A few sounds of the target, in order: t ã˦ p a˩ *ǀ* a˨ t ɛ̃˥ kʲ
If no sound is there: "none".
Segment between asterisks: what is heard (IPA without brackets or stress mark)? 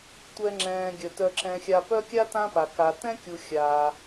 k